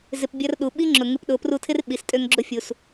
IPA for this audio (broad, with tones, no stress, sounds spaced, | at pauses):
z ɪ˧ p bʲ ɐ˦ r ɗ u˨ ɓ i˦ ŋ͡ǁ ʊ˨ ŋ ɪ˧ p ɗ ʊ˨˦ p r u˧ tʰ ɪ˦ r ɓ i˨ s tʼ ø˧ ŋ ɡ͡ǁ ʊ˧ fʲ u˨ s